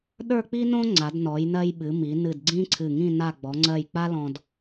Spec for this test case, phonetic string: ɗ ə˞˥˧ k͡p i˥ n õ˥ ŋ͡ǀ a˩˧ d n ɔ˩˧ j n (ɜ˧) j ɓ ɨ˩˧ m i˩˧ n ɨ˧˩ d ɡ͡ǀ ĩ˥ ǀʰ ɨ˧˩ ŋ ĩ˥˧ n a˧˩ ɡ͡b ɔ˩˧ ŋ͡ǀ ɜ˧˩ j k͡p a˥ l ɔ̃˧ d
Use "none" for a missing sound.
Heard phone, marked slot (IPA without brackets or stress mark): ɜ˧